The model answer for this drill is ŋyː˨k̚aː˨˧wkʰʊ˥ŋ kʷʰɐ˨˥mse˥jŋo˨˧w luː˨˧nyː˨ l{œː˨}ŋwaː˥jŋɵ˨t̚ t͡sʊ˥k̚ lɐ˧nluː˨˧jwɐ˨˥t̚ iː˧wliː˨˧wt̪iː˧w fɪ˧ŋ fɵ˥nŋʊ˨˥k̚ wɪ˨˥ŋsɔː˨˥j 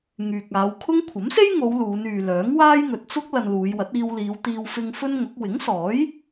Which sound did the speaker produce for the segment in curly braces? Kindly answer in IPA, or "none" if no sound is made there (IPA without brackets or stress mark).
œː˨˥